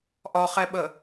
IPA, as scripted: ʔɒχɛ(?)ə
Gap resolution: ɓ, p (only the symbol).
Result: ɓ